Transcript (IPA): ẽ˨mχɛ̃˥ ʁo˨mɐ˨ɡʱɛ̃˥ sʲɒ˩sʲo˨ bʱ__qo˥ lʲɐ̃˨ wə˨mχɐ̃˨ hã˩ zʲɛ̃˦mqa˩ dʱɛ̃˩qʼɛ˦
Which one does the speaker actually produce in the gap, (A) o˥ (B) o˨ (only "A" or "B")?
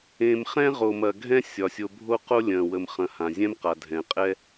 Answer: A